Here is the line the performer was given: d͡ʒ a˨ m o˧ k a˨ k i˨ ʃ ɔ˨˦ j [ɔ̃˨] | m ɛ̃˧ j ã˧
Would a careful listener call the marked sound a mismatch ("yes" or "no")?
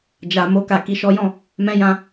yes